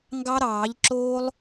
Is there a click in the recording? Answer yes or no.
yes